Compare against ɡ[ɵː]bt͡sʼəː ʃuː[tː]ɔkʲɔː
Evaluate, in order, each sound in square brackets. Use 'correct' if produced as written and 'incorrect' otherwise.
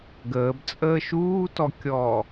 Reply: incorrect, incorrect

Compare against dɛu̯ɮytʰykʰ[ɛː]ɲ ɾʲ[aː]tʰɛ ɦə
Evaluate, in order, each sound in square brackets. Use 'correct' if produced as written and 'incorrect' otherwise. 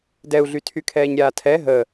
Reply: correct, correct

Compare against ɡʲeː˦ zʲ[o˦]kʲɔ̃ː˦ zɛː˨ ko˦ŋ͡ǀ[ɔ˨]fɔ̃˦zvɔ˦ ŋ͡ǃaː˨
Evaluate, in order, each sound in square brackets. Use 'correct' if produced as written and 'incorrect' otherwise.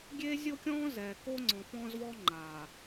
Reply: correct, incorrect

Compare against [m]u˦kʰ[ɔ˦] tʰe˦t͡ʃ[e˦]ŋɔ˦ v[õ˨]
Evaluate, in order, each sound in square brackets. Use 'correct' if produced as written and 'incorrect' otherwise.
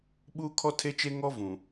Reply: incorrect, correct, correct, incorrect

